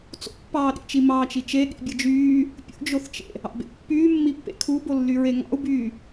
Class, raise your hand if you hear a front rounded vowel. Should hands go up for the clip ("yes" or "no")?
yes